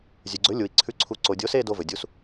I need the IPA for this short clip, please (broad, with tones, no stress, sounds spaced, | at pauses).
zʲ ʉ˩ ɡ͡ǀ ɵ˩˥ lʲ u˩ i̯ ǀʰ ʉ˩˥ ǀʰ u˩˥ ǀ o˩ dʲ o˩˥ s e˦˨ d o˦˨ v ɵ˩ dʲ u˩˥ s